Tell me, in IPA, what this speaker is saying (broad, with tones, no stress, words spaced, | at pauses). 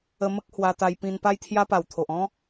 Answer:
ə˧mə˦k̚hwa˧t̪a˧j pĩ˧npa˦jt̪ʰja˦ pa˨˩wt̪ʰo˨ʔɔ̃˦